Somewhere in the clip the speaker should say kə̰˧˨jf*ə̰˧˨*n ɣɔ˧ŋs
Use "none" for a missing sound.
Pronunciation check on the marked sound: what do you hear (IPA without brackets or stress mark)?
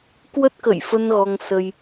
ə˧